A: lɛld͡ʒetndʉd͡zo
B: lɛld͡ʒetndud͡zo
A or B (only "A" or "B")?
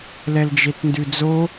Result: A